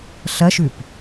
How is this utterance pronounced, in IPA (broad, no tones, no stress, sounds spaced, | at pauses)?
ɬ ɐ ʃ ʉ p